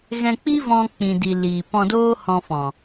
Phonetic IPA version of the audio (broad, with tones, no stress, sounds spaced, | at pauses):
ɣ ɛ̃˧ k͡p i˦ v ɔ̃˧ k͡p ĩ˨ d i˨ l iː˨ p ɔ̃˧ d oː˦ h ɔ̃˧ f ɔ̃˨